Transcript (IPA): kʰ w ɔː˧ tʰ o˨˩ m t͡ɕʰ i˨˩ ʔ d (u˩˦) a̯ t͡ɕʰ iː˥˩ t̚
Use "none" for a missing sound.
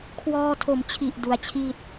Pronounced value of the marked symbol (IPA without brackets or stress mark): u˩˦